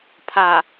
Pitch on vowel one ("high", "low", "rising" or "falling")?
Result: low